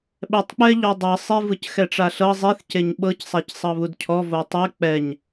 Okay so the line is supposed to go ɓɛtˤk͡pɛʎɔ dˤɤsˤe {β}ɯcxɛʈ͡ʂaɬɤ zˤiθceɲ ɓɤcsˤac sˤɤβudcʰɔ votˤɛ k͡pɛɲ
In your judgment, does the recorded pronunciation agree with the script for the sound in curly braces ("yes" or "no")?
no